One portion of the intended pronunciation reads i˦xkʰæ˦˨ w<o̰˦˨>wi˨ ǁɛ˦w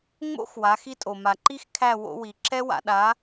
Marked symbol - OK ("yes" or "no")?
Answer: no